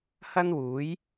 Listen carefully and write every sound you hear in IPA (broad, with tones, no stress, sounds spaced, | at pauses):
h ɐ˥ n w uː˨˥ j